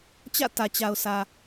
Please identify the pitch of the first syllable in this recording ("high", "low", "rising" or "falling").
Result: falling